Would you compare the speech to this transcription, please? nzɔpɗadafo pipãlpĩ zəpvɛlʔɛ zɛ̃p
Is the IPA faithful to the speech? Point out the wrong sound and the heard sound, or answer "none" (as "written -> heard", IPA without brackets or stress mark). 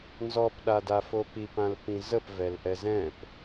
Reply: none